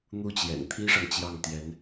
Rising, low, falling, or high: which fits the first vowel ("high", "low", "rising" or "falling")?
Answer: falling